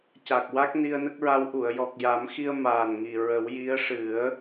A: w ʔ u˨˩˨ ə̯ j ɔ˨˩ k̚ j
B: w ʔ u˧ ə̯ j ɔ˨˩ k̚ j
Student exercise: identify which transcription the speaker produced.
A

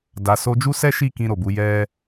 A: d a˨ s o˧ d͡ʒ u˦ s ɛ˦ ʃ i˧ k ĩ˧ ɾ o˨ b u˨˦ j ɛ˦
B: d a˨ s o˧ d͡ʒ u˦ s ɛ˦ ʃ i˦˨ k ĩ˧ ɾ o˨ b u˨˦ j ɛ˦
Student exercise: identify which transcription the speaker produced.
B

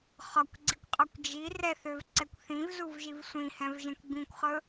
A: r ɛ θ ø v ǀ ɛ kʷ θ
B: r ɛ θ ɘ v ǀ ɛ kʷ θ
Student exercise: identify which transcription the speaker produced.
A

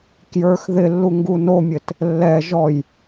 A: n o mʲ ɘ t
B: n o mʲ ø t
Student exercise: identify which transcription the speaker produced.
A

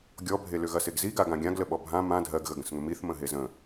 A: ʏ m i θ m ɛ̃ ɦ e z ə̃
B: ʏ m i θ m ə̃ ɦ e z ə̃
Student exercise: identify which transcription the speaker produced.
B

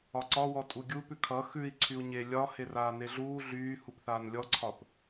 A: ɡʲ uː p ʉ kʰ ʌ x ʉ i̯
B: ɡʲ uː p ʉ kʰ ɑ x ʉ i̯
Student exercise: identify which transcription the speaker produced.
A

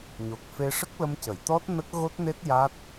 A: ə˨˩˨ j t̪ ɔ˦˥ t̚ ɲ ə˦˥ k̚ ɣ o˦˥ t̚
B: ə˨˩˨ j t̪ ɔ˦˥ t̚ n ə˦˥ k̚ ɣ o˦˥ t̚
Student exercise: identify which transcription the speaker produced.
B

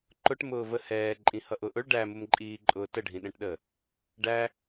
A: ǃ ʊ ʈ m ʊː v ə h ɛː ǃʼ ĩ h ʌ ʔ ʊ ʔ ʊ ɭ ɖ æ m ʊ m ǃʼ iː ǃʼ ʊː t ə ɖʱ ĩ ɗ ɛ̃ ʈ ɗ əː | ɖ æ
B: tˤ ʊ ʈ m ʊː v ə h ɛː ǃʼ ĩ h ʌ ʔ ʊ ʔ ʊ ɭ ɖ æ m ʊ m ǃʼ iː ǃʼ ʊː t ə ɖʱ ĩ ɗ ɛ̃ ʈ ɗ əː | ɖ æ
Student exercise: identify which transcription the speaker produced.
A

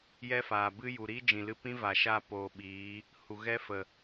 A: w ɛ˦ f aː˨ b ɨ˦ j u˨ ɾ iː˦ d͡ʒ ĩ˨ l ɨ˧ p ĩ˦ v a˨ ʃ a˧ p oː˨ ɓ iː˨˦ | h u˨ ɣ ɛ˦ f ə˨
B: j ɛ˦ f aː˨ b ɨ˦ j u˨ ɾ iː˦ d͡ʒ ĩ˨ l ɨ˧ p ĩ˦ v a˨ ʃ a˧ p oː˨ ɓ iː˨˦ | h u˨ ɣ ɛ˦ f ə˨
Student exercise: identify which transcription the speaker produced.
B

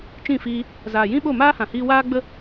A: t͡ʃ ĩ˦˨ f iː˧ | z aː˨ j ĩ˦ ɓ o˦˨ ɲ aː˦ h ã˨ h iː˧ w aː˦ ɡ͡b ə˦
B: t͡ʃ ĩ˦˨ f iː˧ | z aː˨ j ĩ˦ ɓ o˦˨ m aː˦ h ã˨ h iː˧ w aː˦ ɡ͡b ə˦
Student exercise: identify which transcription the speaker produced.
B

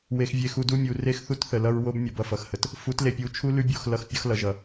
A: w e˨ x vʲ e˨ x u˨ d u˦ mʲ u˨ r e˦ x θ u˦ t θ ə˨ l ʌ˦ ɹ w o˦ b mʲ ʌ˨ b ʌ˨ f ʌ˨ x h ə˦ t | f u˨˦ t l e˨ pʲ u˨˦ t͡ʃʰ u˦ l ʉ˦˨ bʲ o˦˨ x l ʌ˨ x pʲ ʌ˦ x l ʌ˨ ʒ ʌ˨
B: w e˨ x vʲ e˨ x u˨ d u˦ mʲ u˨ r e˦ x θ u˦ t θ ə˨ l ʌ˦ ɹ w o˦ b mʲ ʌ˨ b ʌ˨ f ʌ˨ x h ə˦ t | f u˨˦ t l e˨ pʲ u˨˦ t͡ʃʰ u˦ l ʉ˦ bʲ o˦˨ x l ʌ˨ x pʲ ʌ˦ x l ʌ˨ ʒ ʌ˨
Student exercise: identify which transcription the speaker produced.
B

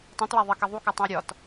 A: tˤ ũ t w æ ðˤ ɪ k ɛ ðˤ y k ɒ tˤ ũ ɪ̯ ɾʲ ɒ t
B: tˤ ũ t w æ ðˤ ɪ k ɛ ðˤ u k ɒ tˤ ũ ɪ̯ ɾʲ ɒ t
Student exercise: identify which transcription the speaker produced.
B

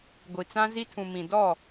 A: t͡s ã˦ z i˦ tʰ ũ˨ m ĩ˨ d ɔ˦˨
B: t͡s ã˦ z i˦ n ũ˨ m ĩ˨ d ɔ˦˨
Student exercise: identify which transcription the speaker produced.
A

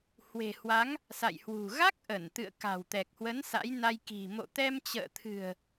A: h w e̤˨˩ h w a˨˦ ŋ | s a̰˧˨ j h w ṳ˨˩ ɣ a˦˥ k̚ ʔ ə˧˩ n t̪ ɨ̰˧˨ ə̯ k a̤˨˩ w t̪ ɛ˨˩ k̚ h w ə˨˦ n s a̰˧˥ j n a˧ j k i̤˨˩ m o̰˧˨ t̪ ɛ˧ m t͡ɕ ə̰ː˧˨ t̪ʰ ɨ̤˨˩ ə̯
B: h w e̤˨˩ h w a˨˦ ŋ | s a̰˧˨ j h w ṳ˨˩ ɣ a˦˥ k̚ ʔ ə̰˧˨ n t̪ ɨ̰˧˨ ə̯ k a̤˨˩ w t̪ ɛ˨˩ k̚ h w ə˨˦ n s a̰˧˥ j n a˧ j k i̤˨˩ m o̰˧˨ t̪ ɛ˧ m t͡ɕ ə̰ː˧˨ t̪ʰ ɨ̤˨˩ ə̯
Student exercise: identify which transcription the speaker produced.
A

